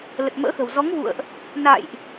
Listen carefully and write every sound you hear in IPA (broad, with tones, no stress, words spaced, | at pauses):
lə˨˩t̚mə̰ː˧˥xə̤˨˩w zɔ˨˦ŋvṵ˧˨ə̯ʔ | na̰˧˨jʔ